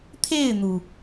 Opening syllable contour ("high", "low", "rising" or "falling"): falling